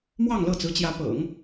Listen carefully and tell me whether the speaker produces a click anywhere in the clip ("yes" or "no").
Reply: no